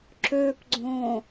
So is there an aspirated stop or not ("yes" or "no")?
no